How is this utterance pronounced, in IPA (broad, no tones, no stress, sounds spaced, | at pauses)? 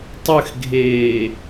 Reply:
tˤ ɨ x ɡʱ eː